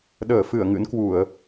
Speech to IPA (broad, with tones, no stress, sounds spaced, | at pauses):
ɗ əː˧˩ f ɨ˧˩ ə̯ ŋ ɨ̰˧˥ n k w u˧˩˨ ə̯